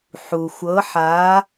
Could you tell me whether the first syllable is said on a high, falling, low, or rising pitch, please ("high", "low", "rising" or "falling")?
low